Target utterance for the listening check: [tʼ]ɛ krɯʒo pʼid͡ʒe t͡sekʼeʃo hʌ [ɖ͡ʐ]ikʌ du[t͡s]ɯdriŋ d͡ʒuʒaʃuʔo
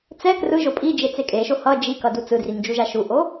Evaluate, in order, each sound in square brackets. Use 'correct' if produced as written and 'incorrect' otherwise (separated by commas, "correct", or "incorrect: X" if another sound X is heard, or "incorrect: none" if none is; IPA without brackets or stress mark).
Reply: incorrect: t͡s, incorrect: d͡ʒ, correct